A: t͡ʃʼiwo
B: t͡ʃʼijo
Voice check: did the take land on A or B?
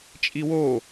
A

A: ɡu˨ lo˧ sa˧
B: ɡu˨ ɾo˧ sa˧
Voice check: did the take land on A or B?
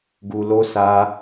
A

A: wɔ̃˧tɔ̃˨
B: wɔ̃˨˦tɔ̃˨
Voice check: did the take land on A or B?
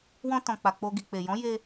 A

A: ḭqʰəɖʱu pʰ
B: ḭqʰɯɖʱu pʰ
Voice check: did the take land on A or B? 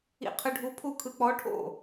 B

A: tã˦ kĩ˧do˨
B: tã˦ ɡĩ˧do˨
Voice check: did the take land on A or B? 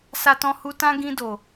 B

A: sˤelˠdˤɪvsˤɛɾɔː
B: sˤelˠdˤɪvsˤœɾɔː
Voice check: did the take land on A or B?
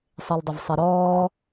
A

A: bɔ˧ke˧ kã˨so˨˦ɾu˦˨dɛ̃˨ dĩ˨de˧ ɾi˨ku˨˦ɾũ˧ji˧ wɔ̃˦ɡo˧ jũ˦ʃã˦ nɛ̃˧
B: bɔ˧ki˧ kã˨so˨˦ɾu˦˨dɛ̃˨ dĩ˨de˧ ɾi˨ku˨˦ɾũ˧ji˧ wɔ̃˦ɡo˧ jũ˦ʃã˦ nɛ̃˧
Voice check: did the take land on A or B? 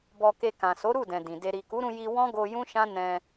A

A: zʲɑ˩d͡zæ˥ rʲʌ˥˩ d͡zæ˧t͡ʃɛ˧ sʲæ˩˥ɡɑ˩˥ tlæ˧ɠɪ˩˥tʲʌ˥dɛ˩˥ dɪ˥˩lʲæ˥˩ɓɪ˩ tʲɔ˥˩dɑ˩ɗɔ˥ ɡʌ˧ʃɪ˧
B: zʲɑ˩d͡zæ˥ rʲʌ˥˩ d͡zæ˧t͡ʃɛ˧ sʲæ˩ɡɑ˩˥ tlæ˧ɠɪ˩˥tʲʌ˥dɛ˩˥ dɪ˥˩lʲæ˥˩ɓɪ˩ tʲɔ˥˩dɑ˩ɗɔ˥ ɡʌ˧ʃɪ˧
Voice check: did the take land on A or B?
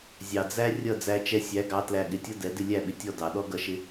A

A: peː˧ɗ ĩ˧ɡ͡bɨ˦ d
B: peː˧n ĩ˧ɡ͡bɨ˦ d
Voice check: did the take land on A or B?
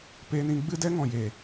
B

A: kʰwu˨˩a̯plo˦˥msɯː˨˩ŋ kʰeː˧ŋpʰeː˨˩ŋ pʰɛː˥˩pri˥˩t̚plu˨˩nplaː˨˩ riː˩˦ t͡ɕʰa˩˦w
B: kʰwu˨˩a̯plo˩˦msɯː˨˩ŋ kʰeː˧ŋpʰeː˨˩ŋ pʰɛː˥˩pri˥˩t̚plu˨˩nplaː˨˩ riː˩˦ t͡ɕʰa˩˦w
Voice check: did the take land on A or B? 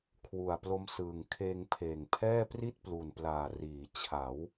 A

